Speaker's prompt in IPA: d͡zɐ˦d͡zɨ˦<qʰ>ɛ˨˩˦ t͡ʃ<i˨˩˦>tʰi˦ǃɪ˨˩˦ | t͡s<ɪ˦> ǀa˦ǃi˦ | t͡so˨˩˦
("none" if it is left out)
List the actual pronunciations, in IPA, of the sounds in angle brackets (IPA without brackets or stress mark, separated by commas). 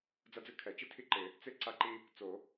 kʰ, i˦, ɪ˦